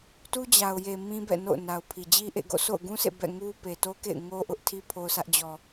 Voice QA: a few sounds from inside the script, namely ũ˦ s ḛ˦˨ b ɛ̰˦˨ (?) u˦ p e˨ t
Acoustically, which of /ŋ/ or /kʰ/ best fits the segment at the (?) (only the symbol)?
ŋ